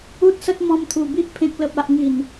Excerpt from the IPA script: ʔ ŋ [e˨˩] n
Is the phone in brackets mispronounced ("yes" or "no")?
yes